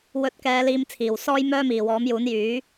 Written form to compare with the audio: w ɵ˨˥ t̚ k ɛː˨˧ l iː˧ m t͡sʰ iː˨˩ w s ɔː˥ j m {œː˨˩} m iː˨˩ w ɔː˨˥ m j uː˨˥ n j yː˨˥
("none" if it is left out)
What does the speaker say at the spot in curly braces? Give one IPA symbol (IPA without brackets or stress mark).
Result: œː˥